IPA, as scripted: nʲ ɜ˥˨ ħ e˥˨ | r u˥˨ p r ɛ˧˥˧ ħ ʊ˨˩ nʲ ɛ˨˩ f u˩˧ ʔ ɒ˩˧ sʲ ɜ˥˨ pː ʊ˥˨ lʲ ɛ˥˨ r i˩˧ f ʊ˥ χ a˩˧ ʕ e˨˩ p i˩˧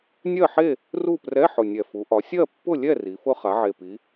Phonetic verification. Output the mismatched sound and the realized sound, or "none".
none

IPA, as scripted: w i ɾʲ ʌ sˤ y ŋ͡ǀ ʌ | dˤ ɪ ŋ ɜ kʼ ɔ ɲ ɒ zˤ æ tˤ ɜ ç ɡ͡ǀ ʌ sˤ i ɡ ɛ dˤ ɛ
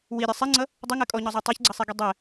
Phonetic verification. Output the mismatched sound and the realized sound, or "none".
y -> i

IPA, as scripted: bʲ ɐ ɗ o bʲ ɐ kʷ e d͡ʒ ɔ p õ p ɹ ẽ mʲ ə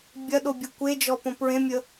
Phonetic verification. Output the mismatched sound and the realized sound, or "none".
none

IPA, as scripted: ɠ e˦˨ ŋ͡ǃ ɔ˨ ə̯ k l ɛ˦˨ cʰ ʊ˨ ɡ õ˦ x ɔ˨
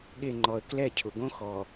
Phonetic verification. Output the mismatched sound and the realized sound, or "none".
none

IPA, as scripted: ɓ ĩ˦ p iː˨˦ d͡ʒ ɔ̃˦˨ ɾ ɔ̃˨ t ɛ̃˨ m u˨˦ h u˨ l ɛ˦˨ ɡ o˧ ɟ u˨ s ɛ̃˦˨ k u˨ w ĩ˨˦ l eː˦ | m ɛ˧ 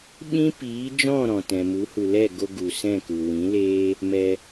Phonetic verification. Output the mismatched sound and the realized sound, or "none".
ɟ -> ɡ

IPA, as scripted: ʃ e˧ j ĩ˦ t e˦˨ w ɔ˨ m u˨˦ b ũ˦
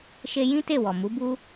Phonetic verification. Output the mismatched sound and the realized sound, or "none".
ũ˦ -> u˦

